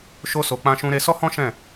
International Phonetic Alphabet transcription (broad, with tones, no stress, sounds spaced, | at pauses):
ʃ o˧ s o˨ k͡p ã˧ ʃ ũ˧ ɾ e˧ s ɔ˦ h ɔ̃˦ ʃ ɛ̃˦˨